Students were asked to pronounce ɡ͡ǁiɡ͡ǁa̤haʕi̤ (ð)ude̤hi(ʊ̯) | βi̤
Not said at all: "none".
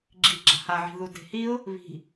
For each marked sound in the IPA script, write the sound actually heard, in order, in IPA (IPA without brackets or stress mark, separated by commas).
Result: ð, ʊ̯